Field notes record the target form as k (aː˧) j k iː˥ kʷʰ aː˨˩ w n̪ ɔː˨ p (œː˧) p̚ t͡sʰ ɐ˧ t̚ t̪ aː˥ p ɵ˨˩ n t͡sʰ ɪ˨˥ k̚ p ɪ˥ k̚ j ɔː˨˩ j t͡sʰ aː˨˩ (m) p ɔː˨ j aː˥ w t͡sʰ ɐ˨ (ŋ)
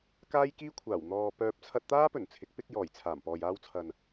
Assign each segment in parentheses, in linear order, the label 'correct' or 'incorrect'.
incorrect: aː˥, correct, correct, incorrect: n

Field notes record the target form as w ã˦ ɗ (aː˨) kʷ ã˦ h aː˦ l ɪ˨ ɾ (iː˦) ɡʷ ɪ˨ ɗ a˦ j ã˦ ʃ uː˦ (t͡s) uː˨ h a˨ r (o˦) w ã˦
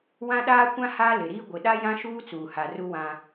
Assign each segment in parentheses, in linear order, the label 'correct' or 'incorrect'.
incorrect: aː˦, correct, correct, incorrect: u˦

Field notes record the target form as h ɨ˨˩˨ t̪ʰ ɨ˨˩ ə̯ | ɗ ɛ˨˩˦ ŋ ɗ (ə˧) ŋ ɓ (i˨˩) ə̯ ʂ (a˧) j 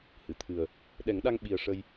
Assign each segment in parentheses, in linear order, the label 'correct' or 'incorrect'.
incorrect: a˧, correct, incorrect: ə˧

